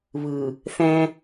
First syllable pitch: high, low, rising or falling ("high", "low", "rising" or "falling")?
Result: low